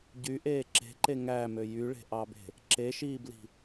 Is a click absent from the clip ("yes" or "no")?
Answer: no